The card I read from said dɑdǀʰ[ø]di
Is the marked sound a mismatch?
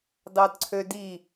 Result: no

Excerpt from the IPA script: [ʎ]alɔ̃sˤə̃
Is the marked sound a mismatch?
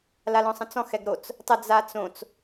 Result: yes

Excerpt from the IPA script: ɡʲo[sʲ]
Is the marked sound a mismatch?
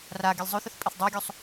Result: yes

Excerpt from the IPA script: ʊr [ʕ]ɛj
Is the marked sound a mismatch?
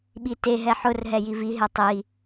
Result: yes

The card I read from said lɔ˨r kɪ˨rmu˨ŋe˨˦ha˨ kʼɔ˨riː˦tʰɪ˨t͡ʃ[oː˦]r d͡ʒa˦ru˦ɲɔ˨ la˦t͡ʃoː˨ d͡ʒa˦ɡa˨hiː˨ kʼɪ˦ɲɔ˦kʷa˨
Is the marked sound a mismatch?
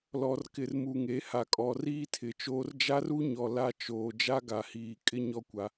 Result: no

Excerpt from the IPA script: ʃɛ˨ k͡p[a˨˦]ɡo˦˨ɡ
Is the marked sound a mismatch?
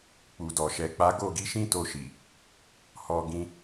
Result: no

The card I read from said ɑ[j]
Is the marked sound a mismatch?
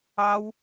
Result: yes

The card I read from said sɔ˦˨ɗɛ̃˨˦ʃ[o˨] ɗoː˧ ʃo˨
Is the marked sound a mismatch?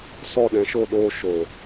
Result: yes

